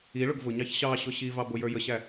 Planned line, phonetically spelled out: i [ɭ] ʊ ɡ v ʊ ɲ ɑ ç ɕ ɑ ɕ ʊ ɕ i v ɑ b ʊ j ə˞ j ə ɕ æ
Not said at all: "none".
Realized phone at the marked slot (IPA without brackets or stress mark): ɭ